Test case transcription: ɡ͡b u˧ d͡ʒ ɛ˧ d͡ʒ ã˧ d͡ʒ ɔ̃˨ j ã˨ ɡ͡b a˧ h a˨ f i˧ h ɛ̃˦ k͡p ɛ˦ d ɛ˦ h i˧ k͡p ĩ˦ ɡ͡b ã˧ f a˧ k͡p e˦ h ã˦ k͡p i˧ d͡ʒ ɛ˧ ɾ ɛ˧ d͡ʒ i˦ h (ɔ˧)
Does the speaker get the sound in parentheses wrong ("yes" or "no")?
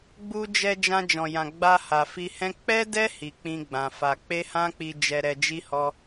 yes